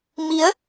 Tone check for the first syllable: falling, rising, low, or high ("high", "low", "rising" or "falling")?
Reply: rising